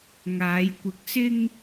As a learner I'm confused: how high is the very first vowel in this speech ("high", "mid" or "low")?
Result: low